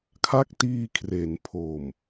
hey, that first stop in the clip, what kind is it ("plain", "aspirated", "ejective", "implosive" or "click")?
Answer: aspirated